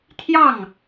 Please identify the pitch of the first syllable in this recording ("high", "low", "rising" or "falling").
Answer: falling